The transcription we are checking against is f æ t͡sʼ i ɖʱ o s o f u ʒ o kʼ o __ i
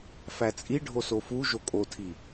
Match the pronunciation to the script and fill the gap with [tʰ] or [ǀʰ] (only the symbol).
tʰ